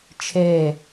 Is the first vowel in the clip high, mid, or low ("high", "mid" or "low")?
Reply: mid